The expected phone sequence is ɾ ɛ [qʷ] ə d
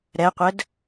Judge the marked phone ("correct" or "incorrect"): correct